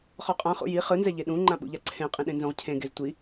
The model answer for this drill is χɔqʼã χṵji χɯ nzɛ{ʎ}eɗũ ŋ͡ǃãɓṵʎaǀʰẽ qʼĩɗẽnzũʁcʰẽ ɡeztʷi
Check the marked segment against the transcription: correct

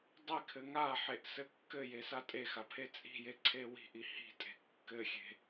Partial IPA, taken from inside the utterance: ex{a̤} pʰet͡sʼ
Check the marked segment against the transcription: incorrect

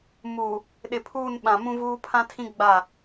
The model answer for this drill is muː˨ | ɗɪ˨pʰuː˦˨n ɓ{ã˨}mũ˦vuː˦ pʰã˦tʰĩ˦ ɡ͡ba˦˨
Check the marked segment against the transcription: correct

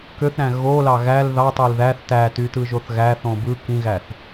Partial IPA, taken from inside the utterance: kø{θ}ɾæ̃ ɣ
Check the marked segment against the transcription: correct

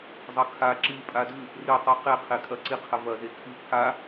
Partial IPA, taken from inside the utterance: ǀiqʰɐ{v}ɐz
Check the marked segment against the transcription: correct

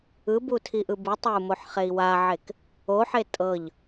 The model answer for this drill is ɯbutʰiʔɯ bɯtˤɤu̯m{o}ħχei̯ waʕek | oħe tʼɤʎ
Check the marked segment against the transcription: correct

